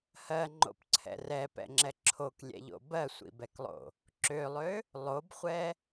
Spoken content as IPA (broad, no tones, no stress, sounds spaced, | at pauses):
h ɜ ŋ͡ǃ o̰ p ǀʰ ɛ̰ r ɛ p ɛ̰ ŋ͡ǁ ɛ ǁʰ o k lʲ ɛ̰ ʎ o̰ b ɜ sʷ ḭ b ɛ k lˠ o̰ | ǁ ø lˠ ø | lˠ o b χʷ ɛ